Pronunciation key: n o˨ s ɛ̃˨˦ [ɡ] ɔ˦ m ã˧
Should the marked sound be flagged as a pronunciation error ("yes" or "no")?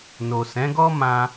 no